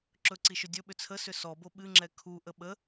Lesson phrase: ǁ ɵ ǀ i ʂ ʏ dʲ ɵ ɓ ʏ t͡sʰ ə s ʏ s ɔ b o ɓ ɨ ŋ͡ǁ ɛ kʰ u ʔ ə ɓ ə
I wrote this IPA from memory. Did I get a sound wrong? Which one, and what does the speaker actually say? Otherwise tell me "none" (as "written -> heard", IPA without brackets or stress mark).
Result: ʂ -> ʃ